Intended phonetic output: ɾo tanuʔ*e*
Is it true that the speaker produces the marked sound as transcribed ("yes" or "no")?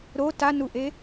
yes